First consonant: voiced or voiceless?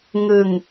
voiced